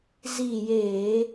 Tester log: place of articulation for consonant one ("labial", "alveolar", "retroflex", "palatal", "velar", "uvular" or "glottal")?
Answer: alveolar